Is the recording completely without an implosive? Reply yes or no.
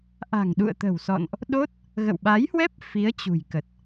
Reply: no